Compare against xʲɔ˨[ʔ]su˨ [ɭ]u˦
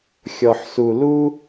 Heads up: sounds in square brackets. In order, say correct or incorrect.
incorrect: ħ, incorrect: l

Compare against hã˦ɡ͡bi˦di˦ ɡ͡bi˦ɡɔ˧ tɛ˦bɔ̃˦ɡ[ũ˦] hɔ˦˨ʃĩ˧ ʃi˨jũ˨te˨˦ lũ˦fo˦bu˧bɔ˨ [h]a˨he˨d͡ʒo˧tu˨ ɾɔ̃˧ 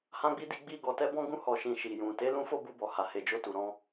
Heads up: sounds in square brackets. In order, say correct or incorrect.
correct, correct

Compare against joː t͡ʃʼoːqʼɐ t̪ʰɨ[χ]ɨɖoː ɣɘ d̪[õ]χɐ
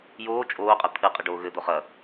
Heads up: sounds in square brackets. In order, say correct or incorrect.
incorrect: qʼ, incorrect: o

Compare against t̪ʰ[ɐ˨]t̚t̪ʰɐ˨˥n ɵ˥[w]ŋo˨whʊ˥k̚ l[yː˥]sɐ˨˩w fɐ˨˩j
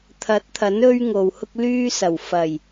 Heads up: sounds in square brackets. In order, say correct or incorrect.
incorrect: ɐ˨˥, incorrect: ɥ, correct

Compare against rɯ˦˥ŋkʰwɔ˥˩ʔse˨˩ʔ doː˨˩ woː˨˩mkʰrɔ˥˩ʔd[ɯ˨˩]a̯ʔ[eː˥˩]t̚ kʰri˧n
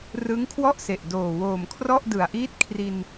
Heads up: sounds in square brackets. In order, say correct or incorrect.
correct, incorrect: iː˥˩

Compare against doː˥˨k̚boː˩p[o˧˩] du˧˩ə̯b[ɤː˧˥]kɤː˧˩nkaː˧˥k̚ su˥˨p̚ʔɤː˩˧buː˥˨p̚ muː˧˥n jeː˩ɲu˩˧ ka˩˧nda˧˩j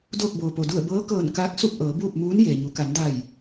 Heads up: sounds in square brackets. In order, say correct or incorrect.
incorrect: o˩, correct

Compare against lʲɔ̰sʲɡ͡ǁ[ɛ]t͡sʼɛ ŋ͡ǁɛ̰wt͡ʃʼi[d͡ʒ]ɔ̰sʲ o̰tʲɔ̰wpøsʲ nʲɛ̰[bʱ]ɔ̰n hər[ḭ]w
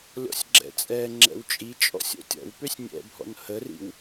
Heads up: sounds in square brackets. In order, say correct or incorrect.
incorrect: ɛ̰, incorrect: t͡ʃʼ, correct, correct

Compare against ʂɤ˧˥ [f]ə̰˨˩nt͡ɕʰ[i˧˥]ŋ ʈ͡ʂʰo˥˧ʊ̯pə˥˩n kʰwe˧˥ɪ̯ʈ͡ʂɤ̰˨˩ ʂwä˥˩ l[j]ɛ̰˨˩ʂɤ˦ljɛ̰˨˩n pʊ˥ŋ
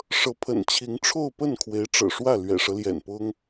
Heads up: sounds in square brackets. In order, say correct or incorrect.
incorrect: pʰ, correct, incorrect: ɥ

